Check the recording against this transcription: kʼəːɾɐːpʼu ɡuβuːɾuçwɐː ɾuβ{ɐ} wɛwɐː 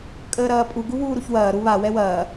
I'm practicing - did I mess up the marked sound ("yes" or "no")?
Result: yes